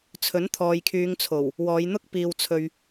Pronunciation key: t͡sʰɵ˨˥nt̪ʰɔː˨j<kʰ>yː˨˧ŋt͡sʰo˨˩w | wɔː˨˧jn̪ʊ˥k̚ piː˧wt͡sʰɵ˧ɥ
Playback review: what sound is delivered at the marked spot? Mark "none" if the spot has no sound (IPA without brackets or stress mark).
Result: kʰ